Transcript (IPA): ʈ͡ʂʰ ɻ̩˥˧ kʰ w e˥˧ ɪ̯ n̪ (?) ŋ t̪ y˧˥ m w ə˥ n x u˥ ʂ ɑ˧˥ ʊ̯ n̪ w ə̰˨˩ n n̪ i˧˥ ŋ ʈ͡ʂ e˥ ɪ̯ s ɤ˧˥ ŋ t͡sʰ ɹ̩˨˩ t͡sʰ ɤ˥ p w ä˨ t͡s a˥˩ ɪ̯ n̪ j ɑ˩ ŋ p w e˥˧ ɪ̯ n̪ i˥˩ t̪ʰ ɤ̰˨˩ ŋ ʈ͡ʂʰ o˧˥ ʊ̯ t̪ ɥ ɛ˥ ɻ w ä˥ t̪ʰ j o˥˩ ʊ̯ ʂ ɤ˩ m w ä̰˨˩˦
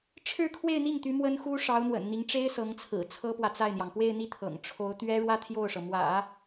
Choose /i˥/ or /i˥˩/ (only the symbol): i˥˩